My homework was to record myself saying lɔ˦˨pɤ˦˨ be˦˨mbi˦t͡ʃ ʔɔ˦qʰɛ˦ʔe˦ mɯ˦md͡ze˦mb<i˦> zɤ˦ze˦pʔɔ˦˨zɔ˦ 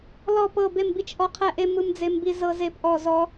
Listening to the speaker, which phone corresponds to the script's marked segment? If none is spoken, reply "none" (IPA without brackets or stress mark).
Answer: i˦